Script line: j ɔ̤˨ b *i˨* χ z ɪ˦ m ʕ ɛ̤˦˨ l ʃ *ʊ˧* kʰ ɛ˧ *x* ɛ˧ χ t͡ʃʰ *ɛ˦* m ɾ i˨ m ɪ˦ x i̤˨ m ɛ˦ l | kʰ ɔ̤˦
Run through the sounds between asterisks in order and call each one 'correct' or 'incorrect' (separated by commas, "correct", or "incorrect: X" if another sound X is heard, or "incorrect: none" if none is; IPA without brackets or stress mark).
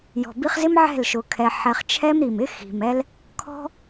incorrect: i˧, correct, incorrect: ħ, correct